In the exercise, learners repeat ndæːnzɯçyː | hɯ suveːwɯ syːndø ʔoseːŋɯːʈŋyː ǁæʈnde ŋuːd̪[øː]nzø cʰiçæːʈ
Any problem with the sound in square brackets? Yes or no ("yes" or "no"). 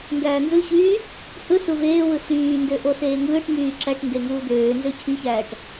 no